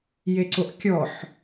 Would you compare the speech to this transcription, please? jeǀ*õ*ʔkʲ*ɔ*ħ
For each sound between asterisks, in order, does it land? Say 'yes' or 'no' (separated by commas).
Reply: no, yes